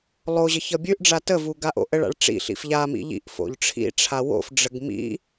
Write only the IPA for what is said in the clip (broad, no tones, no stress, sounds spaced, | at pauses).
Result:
lˠ o ʑ ʌ ç ʌ bʲ ʉ ʔ ɖ͡ʐ a t ə v u ɡ a ʔ o̰ ʔ ə ɭ a̰ ɭ ʈ͡ʂ ḭ ɬ ḭ f ʎ a m ḭ ʎ ḭ ʔ f o̰ ʎ ʈ͡ʂʰ ḭ ʈ͡ʂʰ a w o̰ f ɖ͡ʐ ə ɡ m ḭ